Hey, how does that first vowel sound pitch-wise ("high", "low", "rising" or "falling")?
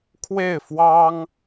falling